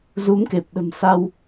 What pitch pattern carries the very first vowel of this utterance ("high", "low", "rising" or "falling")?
rising